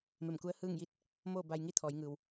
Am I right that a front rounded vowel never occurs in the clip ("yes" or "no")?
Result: yes